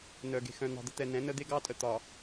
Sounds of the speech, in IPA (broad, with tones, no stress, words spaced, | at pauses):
nœ˨ ɡe̤˨xœ̃˨n̪ɑ̤˨d̪ə˦ t̪ɛ˨nɛ̃˨˦nə˦ d̪e˦ɡɑ˦tʼə˨ t̪ɒ˨